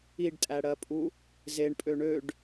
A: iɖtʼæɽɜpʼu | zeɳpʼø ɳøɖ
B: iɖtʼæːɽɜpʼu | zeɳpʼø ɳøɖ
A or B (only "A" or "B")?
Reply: A